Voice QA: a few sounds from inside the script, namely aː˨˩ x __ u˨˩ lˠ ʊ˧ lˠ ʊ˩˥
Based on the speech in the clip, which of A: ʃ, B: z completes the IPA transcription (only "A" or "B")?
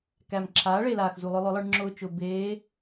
B